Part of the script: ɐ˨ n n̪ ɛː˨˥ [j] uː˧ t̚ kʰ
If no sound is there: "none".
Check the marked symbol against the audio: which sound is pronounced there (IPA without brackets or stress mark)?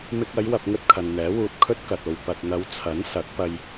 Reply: w